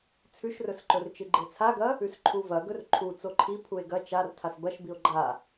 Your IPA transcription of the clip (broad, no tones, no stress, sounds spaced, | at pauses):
t͡sʰ ʉ ʃ r ɵ s ǃ ɵ r t͡ʃ ɨ ɡ͡ǃ e t͡sʰ a ɡ ɐ | ʉ s ǃʰ u v ɐ ɡ ɵ r ǃʰ u t͡s o ǃʰ i pʰ u e̯ ɡ ɐ t͡ʃ a r tʰ a s b ɐ ʃ b i o̯ ɡ͡ǃ a